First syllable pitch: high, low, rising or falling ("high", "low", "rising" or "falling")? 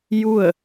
falling